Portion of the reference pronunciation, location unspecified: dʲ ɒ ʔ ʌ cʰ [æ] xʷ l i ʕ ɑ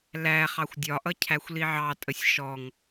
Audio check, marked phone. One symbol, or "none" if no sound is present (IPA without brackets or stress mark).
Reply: æ